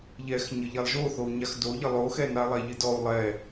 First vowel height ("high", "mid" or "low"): mid